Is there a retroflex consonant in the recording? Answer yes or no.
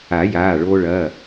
yes